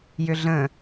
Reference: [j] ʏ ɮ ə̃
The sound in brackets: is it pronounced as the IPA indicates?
yes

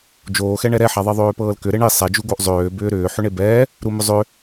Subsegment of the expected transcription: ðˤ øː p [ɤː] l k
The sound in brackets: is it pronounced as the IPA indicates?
yes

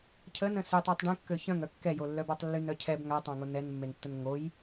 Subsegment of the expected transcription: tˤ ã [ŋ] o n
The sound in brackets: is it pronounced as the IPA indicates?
yes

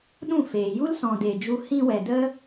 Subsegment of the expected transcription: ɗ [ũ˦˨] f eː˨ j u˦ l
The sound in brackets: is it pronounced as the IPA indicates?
yes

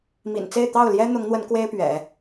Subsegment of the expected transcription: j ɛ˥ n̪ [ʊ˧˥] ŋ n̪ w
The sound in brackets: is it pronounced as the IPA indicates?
yes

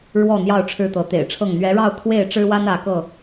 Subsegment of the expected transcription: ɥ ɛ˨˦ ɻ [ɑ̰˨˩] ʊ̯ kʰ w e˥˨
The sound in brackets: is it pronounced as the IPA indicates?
no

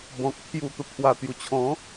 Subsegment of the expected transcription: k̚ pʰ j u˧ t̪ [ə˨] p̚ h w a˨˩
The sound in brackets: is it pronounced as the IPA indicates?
yes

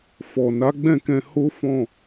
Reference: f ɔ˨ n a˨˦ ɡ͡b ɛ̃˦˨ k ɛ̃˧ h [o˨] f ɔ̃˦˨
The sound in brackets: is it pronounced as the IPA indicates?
no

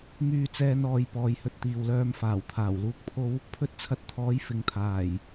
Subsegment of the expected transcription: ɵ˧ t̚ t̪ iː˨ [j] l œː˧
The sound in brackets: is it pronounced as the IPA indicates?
no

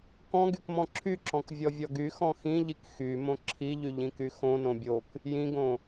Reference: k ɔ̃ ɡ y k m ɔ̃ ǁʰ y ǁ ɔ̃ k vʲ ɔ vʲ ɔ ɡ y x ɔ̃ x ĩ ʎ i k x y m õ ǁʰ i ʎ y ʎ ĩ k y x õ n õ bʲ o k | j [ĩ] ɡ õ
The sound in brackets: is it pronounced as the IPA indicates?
yes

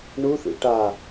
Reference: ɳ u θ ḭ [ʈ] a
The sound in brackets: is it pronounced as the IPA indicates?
yes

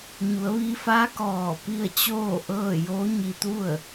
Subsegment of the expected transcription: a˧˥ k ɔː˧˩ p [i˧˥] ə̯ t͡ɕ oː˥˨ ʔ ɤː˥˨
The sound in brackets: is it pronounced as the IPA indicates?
no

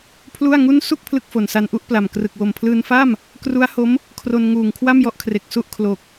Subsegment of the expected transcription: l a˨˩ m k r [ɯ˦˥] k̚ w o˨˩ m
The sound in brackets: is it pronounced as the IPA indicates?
no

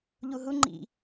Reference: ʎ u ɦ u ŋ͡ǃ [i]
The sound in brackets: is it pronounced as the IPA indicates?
no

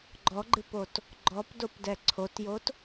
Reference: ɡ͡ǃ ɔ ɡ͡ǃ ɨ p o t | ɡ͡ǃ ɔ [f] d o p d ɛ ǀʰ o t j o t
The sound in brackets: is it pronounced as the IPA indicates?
no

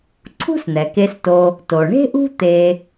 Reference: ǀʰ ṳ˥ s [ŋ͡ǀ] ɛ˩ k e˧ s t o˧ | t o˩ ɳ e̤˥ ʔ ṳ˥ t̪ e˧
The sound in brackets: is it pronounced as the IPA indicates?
no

